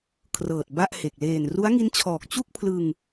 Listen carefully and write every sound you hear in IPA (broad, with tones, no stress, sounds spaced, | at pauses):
kʰ r ɤː˨˩ t̚ b a˥˩ ʔ h e˨˩ k̚ l eː˨˩ n r u˦˥ a̯ ŋ i˦˥ n t͡ɕʰ ɔː˨˩ k̚ t͡ɕ u˥˩ k̚ pʰ l ɯ˧ ŋ